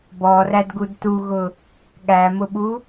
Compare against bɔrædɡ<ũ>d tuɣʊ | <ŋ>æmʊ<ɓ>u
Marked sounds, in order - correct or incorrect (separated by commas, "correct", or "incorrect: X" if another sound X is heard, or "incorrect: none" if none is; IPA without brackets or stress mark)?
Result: incorrect: u, incorrect: ɠ, correct